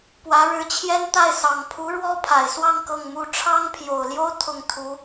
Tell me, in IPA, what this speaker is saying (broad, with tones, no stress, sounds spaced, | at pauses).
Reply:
p w ä˧˥ ɻ ɻ̩˧˥ t͡ɕʰ j ɛ˥ n t̪ a˥˩ ɪ̯ s ɑ˨˩ ŋ pʰ u˧˥ ɻ w ɔ˥ pʰ a˨˩ ɪ̯ s w ɑ˥˧ ŋ k ɤ˥˩ ŋ m u˥ ʈ͡ʂʰ ɑ˥ ŋ pʰ j o˨˩ ʊ̯ l j o˥ ʊ̯ t̪ʰ ʊ˥˩ ŋ t̪ʰ u˧˥